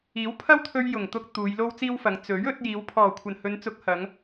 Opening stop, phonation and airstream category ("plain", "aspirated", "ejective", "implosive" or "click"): aspirated